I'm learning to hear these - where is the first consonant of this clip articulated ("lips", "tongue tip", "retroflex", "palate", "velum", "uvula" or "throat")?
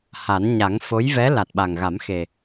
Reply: throat